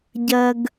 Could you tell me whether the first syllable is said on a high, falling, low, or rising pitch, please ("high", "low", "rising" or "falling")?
high